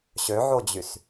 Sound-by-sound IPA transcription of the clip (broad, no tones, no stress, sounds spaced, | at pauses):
ɕ ø ʕ o d͡ʑ y s